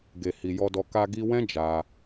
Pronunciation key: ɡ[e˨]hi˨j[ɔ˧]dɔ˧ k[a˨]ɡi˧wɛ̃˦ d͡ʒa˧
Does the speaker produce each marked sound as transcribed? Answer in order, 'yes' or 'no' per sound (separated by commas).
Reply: yes, yes, no